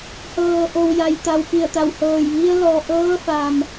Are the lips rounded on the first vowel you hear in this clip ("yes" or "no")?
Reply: no